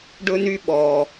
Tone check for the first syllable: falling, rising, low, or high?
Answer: high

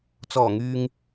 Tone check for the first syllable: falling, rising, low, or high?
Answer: low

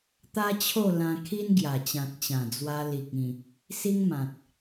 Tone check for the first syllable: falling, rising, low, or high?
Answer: high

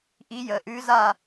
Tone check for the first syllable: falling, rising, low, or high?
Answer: rising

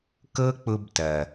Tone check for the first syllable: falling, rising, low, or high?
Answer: high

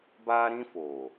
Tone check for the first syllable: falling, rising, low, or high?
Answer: high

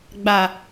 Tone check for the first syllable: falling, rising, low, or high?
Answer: low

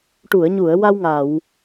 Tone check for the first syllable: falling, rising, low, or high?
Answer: low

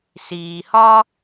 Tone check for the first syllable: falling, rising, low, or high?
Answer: low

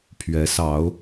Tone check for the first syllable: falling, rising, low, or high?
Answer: rising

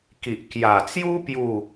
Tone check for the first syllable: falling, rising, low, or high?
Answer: low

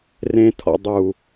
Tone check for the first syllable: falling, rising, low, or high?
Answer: low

